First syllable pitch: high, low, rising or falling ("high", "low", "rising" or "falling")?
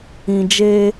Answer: low